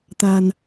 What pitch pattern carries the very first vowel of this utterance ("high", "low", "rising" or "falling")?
low